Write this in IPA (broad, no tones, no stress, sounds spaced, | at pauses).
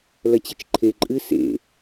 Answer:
l ɐ t͡ɕ e t͡ʃ ǃʰ e ǃʼ ɨ s ḛ